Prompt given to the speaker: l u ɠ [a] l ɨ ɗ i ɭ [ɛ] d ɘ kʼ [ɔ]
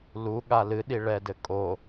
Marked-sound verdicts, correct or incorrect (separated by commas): correct, correct, incorrect